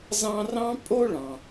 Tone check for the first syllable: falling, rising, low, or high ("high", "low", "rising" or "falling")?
high